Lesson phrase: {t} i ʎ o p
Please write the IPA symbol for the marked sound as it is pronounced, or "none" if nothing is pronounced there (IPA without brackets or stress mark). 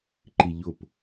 ǃ